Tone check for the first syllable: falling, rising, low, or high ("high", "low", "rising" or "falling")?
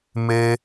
high